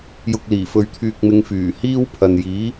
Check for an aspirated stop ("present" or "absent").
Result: present